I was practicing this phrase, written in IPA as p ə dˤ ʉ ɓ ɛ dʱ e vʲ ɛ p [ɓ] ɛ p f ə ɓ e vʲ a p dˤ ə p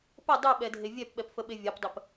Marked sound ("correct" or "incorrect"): correct